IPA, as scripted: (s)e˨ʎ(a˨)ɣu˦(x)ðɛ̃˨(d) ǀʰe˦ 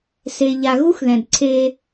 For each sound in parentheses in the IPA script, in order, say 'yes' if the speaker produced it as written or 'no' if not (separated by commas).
yes, yes, yes, yes